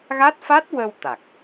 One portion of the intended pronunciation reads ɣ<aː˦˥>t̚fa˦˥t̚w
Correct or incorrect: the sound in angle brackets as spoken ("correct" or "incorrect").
incorrect